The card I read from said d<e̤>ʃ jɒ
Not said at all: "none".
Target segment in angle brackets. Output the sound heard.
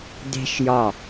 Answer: e̤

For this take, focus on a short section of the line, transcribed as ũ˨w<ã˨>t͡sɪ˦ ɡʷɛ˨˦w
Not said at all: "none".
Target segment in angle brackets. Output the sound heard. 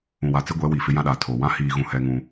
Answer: a˨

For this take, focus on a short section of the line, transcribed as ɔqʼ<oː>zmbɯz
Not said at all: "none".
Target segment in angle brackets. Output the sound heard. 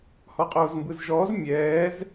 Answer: oː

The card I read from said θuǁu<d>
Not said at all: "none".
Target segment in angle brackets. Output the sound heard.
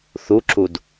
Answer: d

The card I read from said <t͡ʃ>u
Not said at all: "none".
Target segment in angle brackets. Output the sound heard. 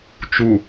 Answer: t͡ʃ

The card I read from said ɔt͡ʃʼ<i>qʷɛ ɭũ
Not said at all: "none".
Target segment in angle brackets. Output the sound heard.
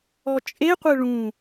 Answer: e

